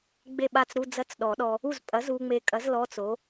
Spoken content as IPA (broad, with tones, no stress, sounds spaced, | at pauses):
ɡ͡b e˥˩ ɓ a˥˩ t͡s ɾ u˧˥˧ d͡z ɐ˦˥ t͡s ɗ ɔ˨˩˦ ɗ ɔ˨ | u˥˩ z pʼ ɐ˩˥ z u˨ ŋ͡m e˨ kʼ ɐ˩˥ z l ɔ˧˥˧ t͡s o˩˥